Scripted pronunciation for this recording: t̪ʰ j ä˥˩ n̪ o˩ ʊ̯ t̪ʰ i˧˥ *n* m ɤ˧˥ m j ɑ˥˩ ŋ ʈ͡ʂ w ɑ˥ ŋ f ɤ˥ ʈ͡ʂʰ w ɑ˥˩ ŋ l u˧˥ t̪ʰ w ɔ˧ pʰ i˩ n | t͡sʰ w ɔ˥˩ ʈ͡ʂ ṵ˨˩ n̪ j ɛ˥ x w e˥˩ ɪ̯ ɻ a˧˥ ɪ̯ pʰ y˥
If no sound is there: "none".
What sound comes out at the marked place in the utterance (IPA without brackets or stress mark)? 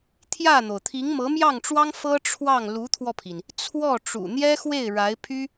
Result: ŋ